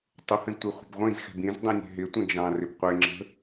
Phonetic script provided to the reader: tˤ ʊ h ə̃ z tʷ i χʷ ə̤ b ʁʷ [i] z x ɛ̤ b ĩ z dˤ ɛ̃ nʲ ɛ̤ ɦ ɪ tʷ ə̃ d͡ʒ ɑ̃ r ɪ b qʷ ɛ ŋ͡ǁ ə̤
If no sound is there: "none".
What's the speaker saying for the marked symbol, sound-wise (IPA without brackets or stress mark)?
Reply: ĩ